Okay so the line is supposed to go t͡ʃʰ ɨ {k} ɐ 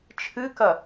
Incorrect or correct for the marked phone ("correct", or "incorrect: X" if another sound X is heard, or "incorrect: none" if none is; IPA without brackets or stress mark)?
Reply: correct